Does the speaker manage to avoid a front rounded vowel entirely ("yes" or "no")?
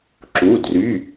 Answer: no